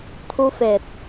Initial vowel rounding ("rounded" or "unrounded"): rounded